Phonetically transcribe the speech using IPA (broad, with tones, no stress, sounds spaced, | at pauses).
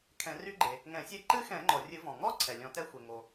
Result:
kʰ ɛ̃˨˩˦ r y˦˥ ɡ͡ǃ e˩ | ŋ ɛ̃˨˩˦ sʲ e˦˥ ǃ ɨ˦˥ x ɛ̃˨˩˦ ŋ͡ǃ ɔ˩ rʲ ɨ˨˩˦ v ɔ̃˩ ŋ ɔ˦˥ ǀʰ ɛ˩ lʲ ɔ̃˨˩˦ t ɛ˦˥ xʷ e˩ ŋ o˩